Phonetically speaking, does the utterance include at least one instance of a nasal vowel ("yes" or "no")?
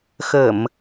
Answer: no